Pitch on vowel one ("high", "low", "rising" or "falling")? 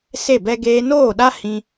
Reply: falling